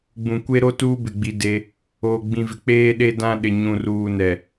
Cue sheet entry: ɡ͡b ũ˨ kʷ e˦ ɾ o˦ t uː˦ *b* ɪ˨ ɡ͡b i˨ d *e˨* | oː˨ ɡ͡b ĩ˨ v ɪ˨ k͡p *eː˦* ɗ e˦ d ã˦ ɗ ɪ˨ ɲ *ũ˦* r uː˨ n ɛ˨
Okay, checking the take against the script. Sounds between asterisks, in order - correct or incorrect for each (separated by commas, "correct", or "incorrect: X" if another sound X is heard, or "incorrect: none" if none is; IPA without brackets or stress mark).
correct, incorrect: e˦, correct, incorrect: ũ˨